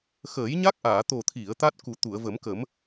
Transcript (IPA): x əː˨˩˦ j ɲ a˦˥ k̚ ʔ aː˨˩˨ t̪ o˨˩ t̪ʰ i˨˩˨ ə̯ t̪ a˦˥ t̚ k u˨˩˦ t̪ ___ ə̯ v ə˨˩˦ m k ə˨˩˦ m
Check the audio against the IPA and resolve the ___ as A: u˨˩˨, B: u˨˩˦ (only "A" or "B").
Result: A